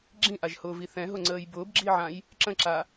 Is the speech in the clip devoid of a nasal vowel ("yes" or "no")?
no